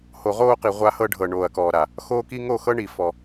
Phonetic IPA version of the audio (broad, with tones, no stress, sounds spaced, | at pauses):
h o˨ ʁ oː˦ q i˨ ʁʷ a˦ h ɤ˦ ɖʱ ɤ˨ ɳ oː˨ ɐ̯ k ɔː˨ ɾ a˨ | x oː˦ k i˦ ŋ o˦˨ x ɤ˦ ɳ i˨ f ɔ˨